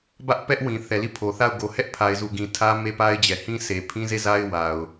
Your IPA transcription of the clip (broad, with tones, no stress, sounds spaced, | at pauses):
b ä˦ ʔ p ɛ˦ ʔ w ĩ˨ θ ɛ˨ l i˦˨ pʰ o˨ θ a˦˨ ʊ̯ ɡ o˨ h ɛ˦ ʔ pʰ a˨ ɪ̯ z u˨ ɡ ĩ˨ tʰ ä˦ m e˦ p a˦ ɪ̯ d͡ʑ ɛ˨ h ĩ˦ s e˨ pʰ ĩ˦ z e˦˨ z a˦ ɪ̯ w a˨ ʊ̯